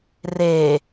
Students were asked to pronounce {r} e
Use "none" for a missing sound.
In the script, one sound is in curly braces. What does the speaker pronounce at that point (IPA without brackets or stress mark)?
r